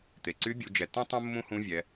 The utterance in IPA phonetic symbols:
t̪ e˩ ǀ y˧˥ bʲ u˩˧ d͡ʒ ɛ˩ tː õ˥ tˤ ũ˥ mː ũ˥ h ũ˧˥ vʲ ɛ˩˧

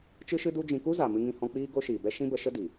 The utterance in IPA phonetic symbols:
t͡ʃ ɨ˦ ʃ ɨ˦ d u˦ d͡ʒ ĩ˧ k u˦ z a˨ m ɨ˧ ŋ ĩ˧ h ɔ̃˧ k͡p iː˦ ɡ o˦ ʃ iː˨ b ɛ˦ ʃ ĩ˦ b ə˧ ʃ ə˦ d i˨

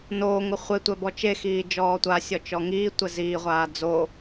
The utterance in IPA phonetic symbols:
n oː ŋ ʊ χʷ e tʷ ɛ b ɔ t͡ʃ e x iː d͡ʒ ɔː tʷ a sʲ ɔ t͡ʃ ɔ ŋ iː tʷ ɛ z iː ʁʷ aː d͡z o

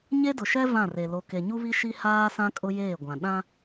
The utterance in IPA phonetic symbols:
ɲ e˦ d ʊ˨ ʃ ɛ˦ v ã˦˨ r e˨ l o˨ k e˨ ɲ u˦ β i˦ ʃ i˦ h aː˦ s ã˦ kʼ ʊ˦ j eː˦˨ ɡʷ ã˨ ɗ ã˦

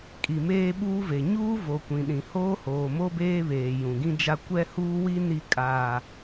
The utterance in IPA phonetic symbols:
kʼ i˨ m eː˦ ɓ uː˦ v e˨ ɲ uː˦ v o˨ kʷ ĩ˨ ɗ ĩ˨ h oː˦ h oː˨ m o˦ b eː˦ β eː˨ j ũ˨ ɡ ĩ˦ d͡ʒ a˦ kʷ ɛ˦ h uː˦ w i˦ n i˦ kʼ aː˨

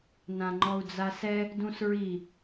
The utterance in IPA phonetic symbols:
n ã ŋ͡ǃ ɔ u̯ d͡z a s ɛ | d ũ s ɹ i

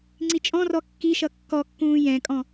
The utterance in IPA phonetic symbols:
ŋ͡ǀ i t͡ʃʼ ɔ̃ r ɔ kː i ʃ ʌ kː ɔ kː ũː j ɛ̃ kʼ ɔ̃

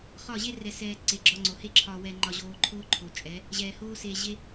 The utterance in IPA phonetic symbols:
χ ɒ˦˨ ʑ e˦ r ɛ˧ s ɛː˧ ǀ e˨ ɡ͡ǁ ɒ˧ ŋ͡ǀ o˨ h e˦ ǁʰ ɒ˧ w ɛ˧ ŋ͡ǃ ɒ˧ ʑ oː˧ ǃʰ oː˦ ǃʰ o˨ t͡ʃʼ ɛ˨˦ | ʑ ɛː˨ h oː˦ s e˧ ʑ e˦

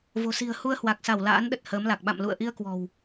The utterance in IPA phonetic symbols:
v o̤˨˩ s i̤˨˩ ə̯ h u˧ ə̯ h w a˨˩ k̚ s a˧˩ w l a̰ː˧˥ n ɗ ə˨˩ t̚ h əː˨˦ m l a˨˩ k̚ ɓ a̰˧˨ m l ṵ˧˨ ə̯ ʔ i˧ ə̯ k w ɔ̤˨˩ w

